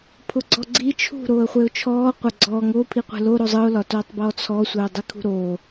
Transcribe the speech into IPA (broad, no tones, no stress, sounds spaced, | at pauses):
pʰ ʊ ɡ͡ǀ ɔ ɡ͡ǀ i t͡ʃʰ ṳ ɾ oː ə̯ χʷ e ʊ̯ t͡ʃʰ ɔː qʷ ɐ ɡ͡ǀ ɔː ŋ oː pʰ i qʷ e̤ l o ɾ o zˤ ɯ ʊ̯ l ɒ t oː tˤ b ɔː t͡sʰ ɔ sʷ e ʊ̯ dˤ i kʰ ṳ ɾ oː